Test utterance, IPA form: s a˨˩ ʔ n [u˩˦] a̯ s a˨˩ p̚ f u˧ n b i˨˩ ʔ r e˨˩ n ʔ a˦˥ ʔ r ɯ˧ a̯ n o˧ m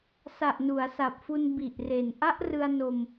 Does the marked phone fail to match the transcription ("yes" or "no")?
no